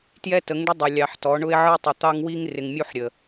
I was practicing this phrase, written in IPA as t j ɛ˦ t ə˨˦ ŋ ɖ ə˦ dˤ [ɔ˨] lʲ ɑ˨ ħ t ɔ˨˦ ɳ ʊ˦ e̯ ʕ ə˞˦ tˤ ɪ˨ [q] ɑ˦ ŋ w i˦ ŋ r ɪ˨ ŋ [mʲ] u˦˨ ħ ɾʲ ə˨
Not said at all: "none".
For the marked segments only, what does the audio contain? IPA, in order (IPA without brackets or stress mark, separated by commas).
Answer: ʊ˨, t̪, mʲ